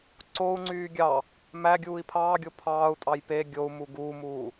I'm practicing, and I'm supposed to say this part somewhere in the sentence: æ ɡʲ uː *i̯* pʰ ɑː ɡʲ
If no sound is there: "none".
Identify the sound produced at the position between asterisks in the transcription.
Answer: i̯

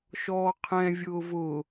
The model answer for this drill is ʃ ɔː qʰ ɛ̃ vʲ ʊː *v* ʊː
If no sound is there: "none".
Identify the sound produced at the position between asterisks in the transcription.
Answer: v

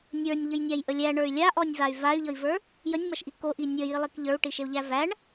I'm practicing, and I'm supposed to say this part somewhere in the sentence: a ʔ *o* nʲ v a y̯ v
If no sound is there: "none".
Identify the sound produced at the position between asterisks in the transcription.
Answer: ɔ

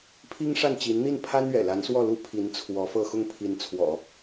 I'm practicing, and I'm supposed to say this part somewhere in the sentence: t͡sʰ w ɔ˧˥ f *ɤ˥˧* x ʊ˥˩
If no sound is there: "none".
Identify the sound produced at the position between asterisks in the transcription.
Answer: ɤ˥˧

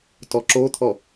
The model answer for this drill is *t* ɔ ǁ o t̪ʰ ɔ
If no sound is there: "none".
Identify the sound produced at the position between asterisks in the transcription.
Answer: t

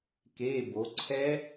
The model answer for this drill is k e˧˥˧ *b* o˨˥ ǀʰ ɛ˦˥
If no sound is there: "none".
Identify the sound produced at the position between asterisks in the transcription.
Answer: b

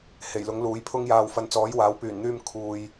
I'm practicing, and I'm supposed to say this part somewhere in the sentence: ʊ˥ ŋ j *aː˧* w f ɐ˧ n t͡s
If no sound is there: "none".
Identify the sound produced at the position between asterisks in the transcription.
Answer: aː˧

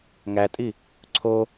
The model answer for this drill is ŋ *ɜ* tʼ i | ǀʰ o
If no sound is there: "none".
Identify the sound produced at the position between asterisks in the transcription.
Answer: æ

